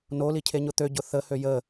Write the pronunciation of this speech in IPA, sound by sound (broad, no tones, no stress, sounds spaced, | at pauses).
n o l i cʰ e ɲ ʊ t̪ ø ɟ ʊ θ ə h ø j ə